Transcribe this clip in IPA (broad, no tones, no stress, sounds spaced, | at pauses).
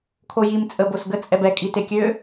kʰ o j i m t͡sʼ ə b o s ɡ ə t͡sʼ ɛ b ɛ kʼ i t e kʲ ø